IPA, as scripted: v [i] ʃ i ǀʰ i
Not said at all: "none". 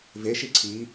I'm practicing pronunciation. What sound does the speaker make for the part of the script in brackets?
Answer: e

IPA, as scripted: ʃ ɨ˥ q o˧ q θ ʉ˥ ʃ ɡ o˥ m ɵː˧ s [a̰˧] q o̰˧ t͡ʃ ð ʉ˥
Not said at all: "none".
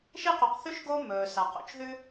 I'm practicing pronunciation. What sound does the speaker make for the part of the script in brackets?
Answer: a˧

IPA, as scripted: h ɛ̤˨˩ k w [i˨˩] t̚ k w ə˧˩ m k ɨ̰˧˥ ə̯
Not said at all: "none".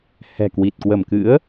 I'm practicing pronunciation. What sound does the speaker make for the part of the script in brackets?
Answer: i˨˩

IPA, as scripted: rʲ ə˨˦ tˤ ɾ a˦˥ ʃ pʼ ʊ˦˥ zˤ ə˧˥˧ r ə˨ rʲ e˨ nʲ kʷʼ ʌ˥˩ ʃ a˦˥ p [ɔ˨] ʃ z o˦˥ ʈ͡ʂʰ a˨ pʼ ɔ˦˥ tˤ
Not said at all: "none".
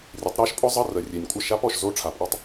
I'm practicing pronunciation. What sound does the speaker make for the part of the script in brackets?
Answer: ɔ˨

